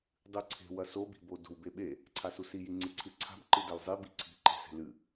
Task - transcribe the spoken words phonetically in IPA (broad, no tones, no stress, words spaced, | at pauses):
dˤɨǀʰe̤ wɐsobi̤bo do̤wbeɓe | ǀʰasusiji ŋ͡ǀɨǀʰɨǀʰa̤b ǃɨdɐlzˤi biǀʰi̤ǃe̤se̤ lɨ